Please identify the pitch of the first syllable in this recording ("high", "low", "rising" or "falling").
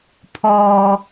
low